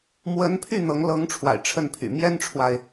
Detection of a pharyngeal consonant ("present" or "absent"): absent